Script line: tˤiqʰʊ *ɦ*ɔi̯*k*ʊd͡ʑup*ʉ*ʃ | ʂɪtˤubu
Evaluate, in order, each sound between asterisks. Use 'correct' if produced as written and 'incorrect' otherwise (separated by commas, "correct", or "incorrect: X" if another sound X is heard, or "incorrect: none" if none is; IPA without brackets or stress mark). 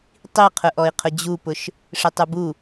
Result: incorrect: ʔ, incorrect: qʰ, incorrect: ʊ